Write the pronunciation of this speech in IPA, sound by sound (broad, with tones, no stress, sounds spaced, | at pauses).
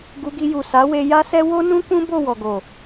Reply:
ɡ u˧ ɡ i˧ j u˨ s a˨˦ w e˧ j a˦ s ɛ˦ w o˦ n ũ˦ k ũ˦ b o˦˨ w ɔ˨ ɡ o˨